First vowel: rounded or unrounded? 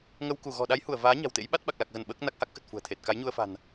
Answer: unrounded